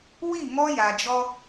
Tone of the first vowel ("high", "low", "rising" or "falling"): falling